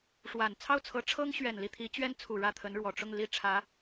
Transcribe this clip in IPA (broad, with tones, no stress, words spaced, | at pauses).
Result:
ʂwa˨˩n t͡sʰɑ˥˩ʊ̯t͡sʰɤ˧˥ ʈ͡ʂʰɤ˥ŋɕɥɛ˨˩n li˥˩t̪ʰi˧˥t͡ɕɥɛ˥nt͡sʰu˨˩ ɻä˥˩t̪ʰə˧˥nɻwɔ˨˩ ʈ͡ʂʊ˥˧ŋli˥˩ ʈ͡ʂʰä˧˥